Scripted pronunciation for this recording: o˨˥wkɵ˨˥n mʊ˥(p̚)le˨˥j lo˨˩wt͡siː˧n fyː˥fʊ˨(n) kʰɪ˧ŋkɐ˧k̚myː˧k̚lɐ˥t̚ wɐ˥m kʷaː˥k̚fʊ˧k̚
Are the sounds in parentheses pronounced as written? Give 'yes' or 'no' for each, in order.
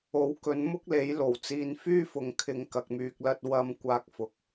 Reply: no, no

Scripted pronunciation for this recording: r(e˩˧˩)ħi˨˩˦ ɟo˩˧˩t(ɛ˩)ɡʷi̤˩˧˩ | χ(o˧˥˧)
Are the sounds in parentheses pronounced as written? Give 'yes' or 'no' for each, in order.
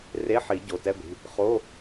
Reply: no, no, yes

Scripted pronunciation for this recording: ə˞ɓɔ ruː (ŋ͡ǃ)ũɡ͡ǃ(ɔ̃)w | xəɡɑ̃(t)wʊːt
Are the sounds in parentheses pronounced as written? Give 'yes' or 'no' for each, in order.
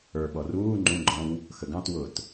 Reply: yes, yes, yes

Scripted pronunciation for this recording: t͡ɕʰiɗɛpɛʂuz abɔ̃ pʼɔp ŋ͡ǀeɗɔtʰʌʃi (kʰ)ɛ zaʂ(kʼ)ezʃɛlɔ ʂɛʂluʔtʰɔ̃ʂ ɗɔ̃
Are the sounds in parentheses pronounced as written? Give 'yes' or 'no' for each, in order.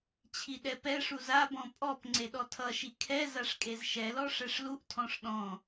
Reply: yes, yes

